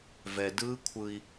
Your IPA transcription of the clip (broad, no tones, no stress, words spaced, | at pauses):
vɛdɯː kʷʰɯi̯